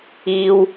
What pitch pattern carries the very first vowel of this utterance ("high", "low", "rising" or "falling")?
high